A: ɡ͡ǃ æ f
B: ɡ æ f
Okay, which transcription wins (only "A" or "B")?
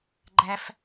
A